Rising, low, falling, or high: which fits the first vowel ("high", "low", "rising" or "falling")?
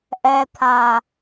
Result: low